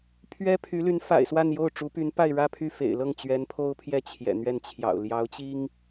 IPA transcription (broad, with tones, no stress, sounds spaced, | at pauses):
pʰ ɥ ɛ˥ pʰ y˧˥ l y˧˥ n f a̰˨˩ ɪ̯ s w a˥˧ n j o˥˩ ʊ̯ ʈ͡ʂ u˧˥ p y˧˥ n p a˥˧ ɪ̯ ɻ ä˥˧ pʰ y˥˩ f ḛ˨˩ ɪ̯ l ɤ˥˩ ŋ t͡ɕ ɥ ɛ˧˥ n pʰ o˥ ʊ̯ pʰ j ɛ˥˩ t͡ɕʰ j ɛ̰˨˩ n̪ ɥ ɛ˥˩ n t͡ɕʰ j ɑ̰˨˩ ʊ̯ l j ɑ˧˥ ʊ̯ t͡ɕ i˥ ŋ